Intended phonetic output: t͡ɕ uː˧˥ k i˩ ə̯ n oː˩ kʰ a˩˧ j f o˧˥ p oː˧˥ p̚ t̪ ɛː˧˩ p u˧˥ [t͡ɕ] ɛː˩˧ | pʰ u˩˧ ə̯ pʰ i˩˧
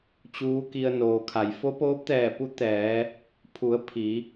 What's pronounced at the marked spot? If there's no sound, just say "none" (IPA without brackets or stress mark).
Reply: t̪